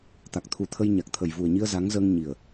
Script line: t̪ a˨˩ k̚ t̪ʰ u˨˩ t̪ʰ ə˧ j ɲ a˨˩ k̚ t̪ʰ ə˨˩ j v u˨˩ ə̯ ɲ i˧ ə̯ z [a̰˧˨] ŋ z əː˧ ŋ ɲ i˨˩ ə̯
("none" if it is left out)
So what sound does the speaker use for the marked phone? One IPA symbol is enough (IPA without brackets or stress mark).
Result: a˨˦